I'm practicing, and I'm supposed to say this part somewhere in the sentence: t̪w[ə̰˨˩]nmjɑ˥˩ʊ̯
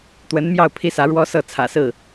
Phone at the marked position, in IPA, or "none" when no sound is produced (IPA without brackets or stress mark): ə˧˥